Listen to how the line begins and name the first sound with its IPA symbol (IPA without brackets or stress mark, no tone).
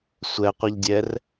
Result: sʷ